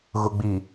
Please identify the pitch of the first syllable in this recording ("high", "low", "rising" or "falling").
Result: low